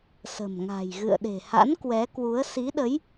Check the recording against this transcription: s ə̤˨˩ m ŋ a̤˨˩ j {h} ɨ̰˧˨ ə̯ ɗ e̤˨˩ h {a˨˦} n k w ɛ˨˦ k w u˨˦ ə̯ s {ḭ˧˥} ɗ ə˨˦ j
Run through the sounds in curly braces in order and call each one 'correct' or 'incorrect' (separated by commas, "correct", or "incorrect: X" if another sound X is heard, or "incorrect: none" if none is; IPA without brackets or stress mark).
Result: incorrect: ɣ, incorrect: a̰˧˥, incorrect: i˨˦